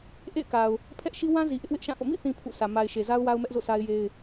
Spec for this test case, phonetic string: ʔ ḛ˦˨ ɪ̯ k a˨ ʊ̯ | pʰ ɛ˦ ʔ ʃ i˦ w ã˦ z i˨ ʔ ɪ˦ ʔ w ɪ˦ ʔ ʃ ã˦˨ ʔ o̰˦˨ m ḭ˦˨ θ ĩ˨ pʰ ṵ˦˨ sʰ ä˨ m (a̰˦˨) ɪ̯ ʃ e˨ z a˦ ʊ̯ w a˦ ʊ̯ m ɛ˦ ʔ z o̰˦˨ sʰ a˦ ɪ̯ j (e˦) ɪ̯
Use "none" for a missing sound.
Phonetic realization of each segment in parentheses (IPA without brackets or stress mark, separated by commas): a˨, e˦